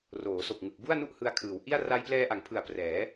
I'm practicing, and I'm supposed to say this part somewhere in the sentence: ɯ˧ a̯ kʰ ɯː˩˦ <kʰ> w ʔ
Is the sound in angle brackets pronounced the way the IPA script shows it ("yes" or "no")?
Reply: no